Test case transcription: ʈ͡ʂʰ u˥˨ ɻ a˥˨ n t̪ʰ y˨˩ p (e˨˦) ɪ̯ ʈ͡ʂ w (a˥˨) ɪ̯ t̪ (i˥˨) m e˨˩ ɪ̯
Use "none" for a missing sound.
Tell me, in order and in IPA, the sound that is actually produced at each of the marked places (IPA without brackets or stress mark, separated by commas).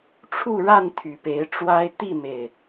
e˨˦, a˦, i˥˨